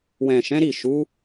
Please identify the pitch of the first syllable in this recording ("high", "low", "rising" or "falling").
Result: low